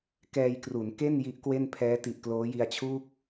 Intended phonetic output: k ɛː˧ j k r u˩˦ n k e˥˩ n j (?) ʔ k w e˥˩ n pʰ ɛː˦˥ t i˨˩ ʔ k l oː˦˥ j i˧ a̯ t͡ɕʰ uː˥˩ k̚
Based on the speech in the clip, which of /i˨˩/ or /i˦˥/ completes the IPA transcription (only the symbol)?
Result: i˦˥